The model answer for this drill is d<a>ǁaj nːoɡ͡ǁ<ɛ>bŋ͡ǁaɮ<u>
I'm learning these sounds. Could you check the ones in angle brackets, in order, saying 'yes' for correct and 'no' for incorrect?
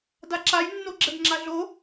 yes, yes, no

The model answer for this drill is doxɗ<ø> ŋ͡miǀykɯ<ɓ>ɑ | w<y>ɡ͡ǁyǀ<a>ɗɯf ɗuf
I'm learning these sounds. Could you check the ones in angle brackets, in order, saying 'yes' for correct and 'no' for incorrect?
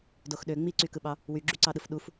yes, yes, yes, no

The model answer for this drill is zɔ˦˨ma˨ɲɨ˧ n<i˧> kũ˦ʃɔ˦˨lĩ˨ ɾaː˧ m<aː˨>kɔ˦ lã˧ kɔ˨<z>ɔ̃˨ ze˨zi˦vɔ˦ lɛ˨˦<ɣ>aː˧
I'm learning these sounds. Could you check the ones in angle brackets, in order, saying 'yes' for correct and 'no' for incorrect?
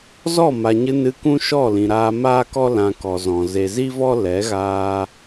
no, no, yes, yes

